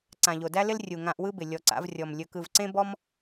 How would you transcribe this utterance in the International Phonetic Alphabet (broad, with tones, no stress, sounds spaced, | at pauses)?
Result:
ǀ ã˨ ʎ o˨ d æ˦ l ɪ˦ l rʲ u˨ ŋ ã˧ ʔ w ɯ˦ b ɪ˨ lʲ ɔ˨ ǀ a̰˧ v rʲ ɔ˨ m lʲ ɵ˧ k ɯ˧ v ǀ ẽ˦ b ɔ˦ m